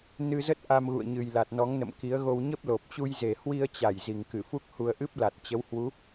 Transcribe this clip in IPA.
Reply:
nɨ˧zə˦˥t̚ ʔa˧mɣṵ˧˨ə̯ɲɨ˨˩jla˨˩t̚ nɔ˨˦ŋnə̰˧˨mki˨˦ə̯ɣo˧w ɲə˦˥p̚lo˨˩p̚t͡ɕu˧j ze˨˩hwi˧ə̯t͡ɕa˧˩j zi˨˩ŋkɨ˧˩fu˦˥k̚hu˧ə̯ ʔɨ˦˥p̚la˨˩t̚t͡ɕə˨˦whwu˨˦

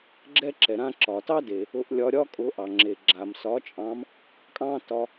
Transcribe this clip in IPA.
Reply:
ɡ͡ǁɛ˥ǁɛ˩ɾã˥ ǁɒ˩tɑ˥de˩ | ʊ˧ʔlʲɒ˧ɾʲɒ˥ kʼʊ˧˥ʔɑ˩ŋ͡ǁe˩ ɡ͡ǁa˩msɒ˧˥t͡ʃʼɑ̃˧˥m | kʼɑ̃˥tɒ˧

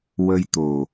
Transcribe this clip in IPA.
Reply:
wə˧jt̪o˨˩

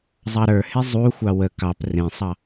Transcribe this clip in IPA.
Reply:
zˤɑɾə˞he zˤuxʷɑ wə kɑp rẽsˤɑ

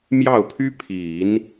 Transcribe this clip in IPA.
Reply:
mjɑ˥˩ʊ̯pʰy˥pʰi˨˩˦n

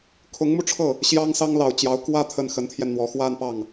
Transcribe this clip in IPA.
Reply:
kʰʊ˧˥ŋmu˧ʈ͡ʂʰɤ˥˩ | ɕjɑ˥ŋsɑ˥ŋlɑ˨˩ʊ̯ t͡ɕjɑ˧˥ʊ̯ kwä˥˧ t̪ʰə˥˩nxə˧˥nt̪ʰjɛ˧nn̪wɔ˧˥ xwa˥˧n pɑ˥˩ŋ

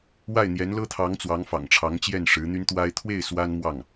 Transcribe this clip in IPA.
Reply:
wa˥˩ɪ̯n̪jɛ˧˥nlɤ˥t̪ʰɑ˧˥ŋ t͡swɑ˧˥ŋfɑ̰˨˩ŋʈ͡ʂʰɑ˧˥ŋt͡ɕjɛ˥˩n ʂɻ̩˧˥n̪y˥nt̪wa˥ɪ̯ t̪ʰwe˥˩ɪ̯ swa˥nmwɑ˥˩ŋ

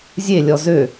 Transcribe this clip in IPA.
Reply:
zʲelʲɔ zø

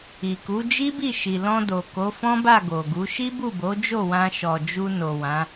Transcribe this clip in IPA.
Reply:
i˨ku˨˦ d͡ʒi˦bi˦˨ʃi˨ lɔ̃˧ do˨ko˨˦fɔ̃˦ba˦˨ ɡo˨ɡu˨˦ ʃi˦bu˦˨bo˨˦d͡ʒo˦˨ wã˧ ʃɔ˨d͡ʒu˧no˨ wã˨˦

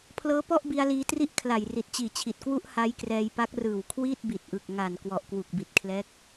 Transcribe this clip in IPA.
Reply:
pʰlɤː˦˥pɔ˥˩ʔ bi˧a̯liː˧tri˥˩ʔ kʰla˨˩jri˨˩t̚ t͡ɕiː˨˩t͡ɕʰi˨˩t̚kwu˦˥ʔ ha˦˥jkrɛː˧jpa˦˥k̚ rɯː˨˩wkʰwiː˥˩t̚bi˨˩t̚ʔɯ˨˩k̚ ŋa˨˩n kwɔ˨˩ʔkwu˨˩k̚bi˨˩t̚ kʰlɛː˦˥k̚

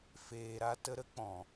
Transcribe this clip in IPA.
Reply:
feː˧ɾa˦tə˦ ɾə˦k͡pɔ̃˨

